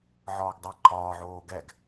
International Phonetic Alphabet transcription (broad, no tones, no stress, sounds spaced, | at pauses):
ʕ ɒː ɡ dˤ əː ǃʰ ɒː ʕ oː ɡ ɛ ɡ